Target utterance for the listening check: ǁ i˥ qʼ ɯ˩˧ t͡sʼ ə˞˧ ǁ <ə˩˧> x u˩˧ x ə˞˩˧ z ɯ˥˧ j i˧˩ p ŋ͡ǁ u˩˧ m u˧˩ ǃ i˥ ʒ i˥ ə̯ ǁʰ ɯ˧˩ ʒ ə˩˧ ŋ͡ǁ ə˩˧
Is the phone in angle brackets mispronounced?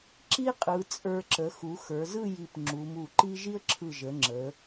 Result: no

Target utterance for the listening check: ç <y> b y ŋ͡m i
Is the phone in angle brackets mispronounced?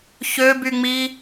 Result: yes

